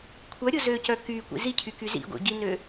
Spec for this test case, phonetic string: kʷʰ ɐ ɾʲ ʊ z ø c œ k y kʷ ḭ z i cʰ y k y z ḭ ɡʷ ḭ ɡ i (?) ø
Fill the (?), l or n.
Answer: n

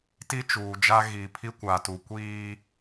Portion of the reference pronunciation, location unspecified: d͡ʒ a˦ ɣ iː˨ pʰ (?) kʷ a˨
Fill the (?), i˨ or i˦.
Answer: i˦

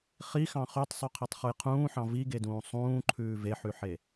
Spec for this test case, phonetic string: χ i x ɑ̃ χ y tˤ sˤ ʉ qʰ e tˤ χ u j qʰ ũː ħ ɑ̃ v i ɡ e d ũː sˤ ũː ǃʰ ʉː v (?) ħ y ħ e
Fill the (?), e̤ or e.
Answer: e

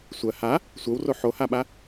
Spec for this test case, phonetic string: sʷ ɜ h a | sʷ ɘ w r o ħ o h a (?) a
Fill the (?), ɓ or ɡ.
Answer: ɓ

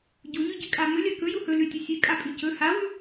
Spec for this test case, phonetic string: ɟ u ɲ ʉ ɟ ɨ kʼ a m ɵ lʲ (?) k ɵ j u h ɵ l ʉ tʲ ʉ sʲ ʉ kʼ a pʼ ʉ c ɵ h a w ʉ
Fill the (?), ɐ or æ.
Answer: ɐ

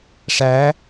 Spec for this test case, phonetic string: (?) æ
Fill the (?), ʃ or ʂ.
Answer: ʂ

